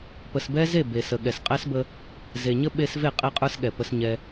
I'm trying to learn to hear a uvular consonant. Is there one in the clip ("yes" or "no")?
yes